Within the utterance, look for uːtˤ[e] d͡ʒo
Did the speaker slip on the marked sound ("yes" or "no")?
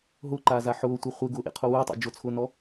yes